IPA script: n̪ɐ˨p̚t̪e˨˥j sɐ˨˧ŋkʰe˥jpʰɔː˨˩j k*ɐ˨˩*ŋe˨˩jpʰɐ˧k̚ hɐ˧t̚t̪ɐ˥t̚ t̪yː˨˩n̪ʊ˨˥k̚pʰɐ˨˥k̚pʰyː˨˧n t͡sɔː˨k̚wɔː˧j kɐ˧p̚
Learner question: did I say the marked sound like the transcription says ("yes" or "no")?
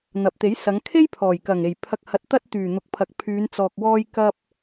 yes